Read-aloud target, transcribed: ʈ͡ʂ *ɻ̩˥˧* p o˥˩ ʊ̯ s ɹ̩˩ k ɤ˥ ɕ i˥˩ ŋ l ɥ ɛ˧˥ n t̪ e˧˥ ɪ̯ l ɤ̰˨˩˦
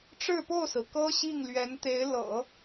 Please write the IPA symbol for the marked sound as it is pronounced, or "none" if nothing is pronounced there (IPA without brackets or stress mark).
ɻ̩˥˧